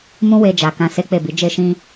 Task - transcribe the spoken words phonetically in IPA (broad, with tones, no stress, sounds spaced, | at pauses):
m ũ˦ w e˧ d͡ʒ a˨ k ã˧ s e˦ k͡p e˦˨ b i˨˦ d͡ʒ e˦ ʃ ĩ˦